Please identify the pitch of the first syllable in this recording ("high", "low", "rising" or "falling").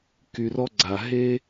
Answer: low